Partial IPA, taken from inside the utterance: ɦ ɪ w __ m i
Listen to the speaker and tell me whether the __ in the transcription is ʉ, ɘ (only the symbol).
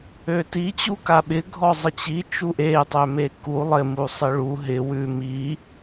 ʉ